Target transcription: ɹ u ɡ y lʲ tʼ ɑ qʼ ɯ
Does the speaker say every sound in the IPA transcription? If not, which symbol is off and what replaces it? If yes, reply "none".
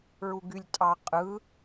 none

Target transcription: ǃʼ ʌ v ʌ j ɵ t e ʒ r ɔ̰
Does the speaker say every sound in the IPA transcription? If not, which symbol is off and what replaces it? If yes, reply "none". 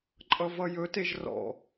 none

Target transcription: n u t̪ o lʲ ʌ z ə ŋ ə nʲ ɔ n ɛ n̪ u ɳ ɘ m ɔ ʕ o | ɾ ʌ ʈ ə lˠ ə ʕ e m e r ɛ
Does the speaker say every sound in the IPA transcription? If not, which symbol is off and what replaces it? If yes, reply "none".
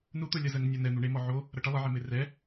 ɘ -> e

